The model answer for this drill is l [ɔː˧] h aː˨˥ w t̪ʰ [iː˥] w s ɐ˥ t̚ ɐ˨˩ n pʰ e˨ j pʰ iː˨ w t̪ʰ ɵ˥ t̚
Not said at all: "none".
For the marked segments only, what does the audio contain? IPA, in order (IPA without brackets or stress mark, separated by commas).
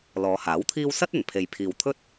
ɔː˨˧, iː˥